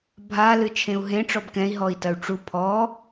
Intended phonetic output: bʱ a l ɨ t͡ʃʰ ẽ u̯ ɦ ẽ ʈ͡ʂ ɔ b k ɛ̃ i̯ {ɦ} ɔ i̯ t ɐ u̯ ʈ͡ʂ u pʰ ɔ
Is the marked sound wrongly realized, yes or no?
no